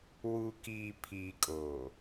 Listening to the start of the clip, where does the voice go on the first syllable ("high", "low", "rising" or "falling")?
low